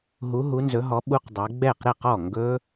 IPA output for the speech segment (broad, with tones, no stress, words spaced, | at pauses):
ɦu˨˦ɦu˨˦nzɵ˨˦ɦɔ˨˦ ɓu˦˥qdˤɛ˨˦ ɡ͡bɛ˥˩qɾɛ˥˩q ɔ˥˩ŋɡɵ˦˥